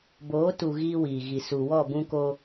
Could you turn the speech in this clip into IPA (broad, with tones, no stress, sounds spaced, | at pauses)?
b oː˨˦ t u˨ ɣ iː˦ w iː˨ ɣ i˨ s u˨ w ɔ˦˨ b ũ˦ k o˦